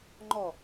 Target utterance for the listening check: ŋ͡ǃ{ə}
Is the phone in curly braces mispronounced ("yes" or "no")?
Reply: yes